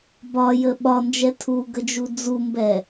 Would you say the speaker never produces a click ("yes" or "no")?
yes